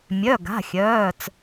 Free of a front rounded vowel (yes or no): no